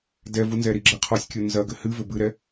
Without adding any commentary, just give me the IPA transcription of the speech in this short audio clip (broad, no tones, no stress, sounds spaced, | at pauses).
d ɛ v u n z ɛ ɾ i ɡ͡ǁ ɘ qʰ ɔ sʲ kʲ o n z ɐ ɡ ɘ h ɨ v ɘ b ɨ ɾ ɛ